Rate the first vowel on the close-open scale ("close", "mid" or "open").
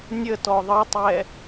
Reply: mid